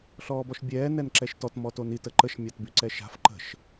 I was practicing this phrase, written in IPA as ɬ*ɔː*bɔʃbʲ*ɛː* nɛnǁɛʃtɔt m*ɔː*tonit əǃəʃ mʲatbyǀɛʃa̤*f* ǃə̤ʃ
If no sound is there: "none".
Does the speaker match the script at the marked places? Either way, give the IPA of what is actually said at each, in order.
ɔː, ɛː, ɔ, f

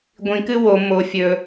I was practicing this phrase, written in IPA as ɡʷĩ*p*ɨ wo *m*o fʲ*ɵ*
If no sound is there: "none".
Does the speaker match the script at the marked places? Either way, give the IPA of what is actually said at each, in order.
k, m, ɵ

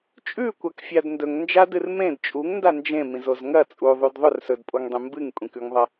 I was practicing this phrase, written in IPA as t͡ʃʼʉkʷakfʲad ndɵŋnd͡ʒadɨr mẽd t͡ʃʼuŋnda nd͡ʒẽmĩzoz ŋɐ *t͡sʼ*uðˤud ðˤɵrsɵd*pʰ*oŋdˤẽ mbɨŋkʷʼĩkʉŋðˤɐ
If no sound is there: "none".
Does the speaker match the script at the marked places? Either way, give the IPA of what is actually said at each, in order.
t͡sʼ, pʼ

